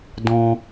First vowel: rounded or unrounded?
rounded